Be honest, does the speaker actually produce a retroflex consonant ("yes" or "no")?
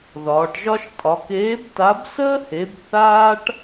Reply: yes